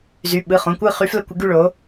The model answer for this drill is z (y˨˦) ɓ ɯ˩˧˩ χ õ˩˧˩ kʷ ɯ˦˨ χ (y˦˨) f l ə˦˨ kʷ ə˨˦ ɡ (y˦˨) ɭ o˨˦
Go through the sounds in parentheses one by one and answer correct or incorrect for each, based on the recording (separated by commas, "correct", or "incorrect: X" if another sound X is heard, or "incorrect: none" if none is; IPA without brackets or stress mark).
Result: incorrect: y˩˧˩, incorrect: y˨˦, correct